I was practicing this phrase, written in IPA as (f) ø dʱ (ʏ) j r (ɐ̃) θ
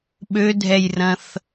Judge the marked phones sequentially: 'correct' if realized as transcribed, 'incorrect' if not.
incorrect: ɓ, incorrect: ɛ, correct

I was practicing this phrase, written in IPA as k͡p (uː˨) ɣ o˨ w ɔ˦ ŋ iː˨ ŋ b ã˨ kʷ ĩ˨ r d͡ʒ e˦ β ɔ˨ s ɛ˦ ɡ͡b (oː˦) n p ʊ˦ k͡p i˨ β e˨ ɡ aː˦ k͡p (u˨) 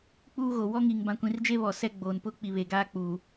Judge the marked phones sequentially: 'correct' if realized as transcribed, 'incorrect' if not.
incorrect: uː˦, incorrect: oː˨, incorrect: uː˨

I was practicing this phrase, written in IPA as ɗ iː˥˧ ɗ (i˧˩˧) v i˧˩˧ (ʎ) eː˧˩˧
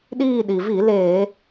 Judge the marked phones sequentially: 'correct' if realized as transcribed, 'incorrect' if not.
incorrect: i˩, incorrect: l

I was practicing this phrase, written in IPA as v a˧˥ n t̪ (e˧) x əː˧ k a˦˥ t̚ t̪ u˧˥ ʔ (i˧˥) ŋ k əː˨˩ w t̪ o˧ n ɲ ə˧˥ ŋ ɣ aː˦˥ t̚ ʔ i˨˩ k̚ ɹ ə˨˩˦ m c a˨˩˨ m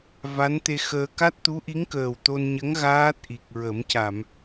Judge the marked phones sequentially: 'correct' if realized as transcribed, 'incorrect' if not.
correct, correct

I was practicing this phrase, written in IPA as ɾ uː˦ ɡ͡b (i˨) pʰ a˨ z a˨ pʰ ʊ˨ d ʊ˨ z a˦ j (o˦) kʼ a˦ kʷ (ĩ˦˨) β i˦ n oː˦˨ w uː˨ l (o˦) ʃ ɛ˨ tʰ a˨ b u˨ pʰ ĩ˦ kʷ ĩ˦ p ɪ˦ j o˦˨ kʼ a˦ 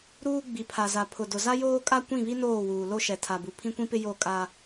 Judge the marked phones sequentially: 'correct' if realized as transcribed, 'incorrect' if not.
correct, incorrect: oː˦, correct, correct

